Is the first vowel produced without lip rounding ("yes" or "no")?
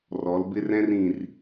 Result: no